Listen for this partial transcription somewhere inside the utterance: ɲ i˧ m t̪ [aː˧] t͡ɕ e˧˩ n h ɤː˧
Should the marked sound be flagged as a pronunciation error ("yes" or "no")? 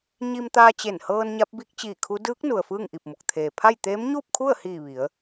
no